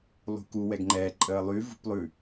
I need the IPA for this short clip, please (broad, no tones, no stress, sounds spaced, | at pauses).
lˠ ṳ k u w ɛ ɡ ŋ͡ǃ ɛ ǃʼ əː lˠ y v ṳ p lˠ ʉ